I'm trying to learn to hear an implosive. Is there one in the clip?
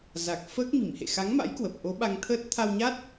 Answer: yes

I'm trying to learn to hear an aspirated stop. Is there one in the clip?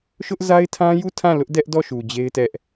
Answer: yes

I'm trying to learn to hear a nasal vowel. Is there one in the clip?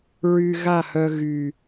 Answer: no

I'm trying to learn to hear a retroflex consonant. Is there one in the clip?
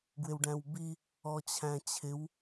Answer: yes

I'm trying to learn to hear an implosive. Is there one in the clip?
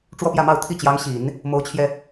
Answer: no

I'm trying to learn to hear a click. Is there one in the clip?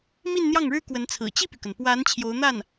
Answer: no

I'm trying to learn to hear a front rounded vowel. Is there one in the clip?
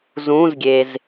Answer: no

